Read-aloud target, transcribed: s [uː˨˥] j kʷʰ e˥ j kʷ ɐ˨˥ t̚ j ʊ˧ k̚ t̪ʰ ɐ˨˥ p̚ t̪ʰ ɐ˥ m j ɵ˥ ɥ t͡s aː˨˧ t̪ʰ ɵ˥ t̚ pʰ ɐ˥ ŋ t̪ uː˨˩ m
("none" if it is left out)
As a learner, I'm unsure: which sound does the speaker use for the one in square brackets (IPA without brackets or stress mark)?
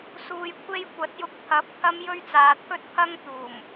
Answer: uː˧